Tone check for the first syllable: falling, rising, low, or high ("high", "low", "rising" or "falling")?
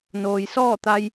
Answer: low